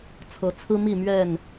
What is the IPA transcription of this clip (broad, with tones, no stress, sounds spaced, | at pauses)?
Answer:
t͡sʰ ɤ˨˦ t͡sʰ ɹ̩˦ m i˥˨ m ɥ ɛ˥˨ n